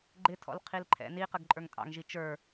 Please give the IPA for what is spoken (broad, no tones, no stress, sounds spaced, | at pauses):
ɡ͡ǃ ɪ tʰ ɔ̰ l qʰ i l ǃʰ ɛ̰ n i q ə ɡ ǃʼ ə˞ ŋ tʼ ɑ̰ ŋ ʒ i t͡ʃ ə˞